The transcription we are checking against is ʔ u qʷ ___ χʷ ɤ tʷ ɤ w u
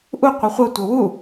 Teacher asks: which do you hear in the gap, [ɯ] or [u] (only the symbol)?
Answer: ɯ